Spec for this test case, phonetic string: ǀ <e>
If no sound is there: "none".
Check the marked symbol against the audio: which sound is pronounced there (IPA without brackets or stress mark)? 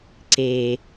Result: e